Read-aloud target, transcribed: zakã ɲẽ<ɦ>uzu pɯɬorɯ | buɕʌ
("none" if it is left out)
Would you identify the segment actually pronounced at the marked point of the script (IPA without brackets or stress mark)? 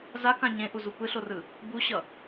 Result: ʔ